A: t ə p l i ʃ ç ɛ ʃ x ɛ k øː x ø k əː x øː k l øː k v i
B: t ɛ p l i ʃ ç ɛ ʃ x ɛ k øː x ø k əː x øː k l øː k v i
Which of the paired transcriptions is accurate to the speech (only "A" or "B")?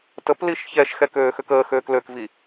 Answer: A